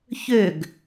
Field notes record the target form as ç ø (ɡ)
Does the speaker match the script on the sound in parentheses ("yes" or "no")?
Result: yes